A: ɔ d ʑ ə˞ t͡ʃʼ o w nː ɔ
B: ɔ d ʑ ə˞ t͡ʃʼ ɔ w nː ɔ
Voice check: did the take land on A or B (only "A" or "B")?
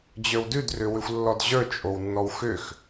A